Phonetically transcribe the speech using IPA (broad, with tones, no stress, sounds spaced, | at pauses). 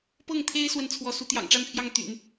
p ɤ˥˩ ŋ t̪ʰ e˥ ɪ̯ s w ə˥˩ n t͡sʰ w ɔ˧˥ s u˧˥ t̪ j ɑ̰˨˩ ŋ ʈ͡ʂ a˥˧ n pʰ j ɑ˥˩ ŋ t̪ y̰˨˩˦ n